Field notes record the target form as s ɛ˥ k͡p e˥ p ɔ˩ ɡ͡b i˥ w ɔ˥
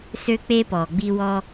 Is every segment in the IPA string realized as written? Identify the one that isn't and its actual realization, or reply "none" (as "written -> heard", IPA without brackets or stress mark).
ɛ˥ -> ø˥